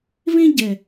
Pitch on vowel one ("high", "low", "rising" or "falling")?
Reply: high